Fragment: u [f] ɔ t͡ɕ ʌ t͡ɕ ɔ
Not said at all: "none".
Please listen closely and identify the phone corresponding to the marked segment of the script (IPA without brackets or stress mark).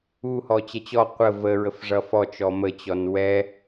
h